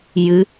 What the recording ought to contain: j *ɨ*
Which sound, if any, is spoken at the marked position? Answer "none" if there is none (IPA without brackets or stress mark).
ɨ